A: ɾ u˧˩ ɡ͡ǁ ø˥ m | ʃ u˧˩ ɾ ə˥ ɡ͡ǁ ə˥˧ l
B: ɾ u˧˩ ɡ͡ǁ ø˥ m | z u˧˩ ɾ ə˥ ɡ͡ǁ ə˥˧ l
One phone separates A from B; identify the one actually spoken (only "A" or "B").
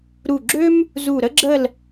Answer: B